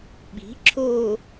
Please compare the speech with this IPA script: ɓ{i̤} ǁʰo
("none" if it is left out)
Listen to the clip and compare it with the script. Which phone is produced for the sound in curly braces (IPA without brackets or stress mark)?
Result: i̤